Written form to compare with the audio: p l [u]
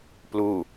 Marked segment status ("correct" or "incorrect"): correct